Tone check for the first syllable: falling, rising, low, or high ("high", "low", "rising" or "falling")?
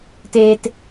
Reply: high